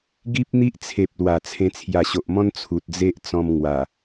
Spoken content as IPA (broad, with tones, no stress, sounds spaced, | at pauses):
ɡ i˦ p̚ n̪ i˦ ʔ t͡sʰ e˨ p̚ l w a˨˩ t͡sʰ ẽ˧ t͡sʰ j a˨˩ ɕ o˨ ʔ m ɔ̃˦ n t͡sʰ u˨ t̚ d͡z e˦ ʔ t͡s ɔ̃˧ m ŋ w a˨˩